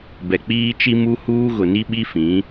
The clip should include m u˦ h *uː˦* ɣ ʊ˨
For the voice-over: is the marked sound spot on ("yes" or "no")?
yes